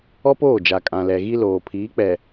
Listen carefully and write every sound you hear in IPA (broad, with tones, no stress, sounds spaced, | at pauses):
ɔ˦ p oː˦˨ d͡ʒ a˨ kʼ ã˨ l ɛ˨ ɣ i˦ l oː˨ pʰ iː˨˦ k͡p ɛ˨